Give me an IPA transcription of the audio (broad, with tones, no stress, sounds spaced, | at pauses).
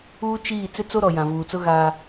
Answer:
uː˦ t͡ʃ iː˦˨ t͡s ɪ˦ t͡s o˦ ɾ ɔ˨ j ã˨ v uː˨ t͡s ʊ˦ ɣ aː˦